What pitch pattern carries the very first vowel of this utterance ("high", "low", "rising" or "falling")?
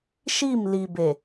falling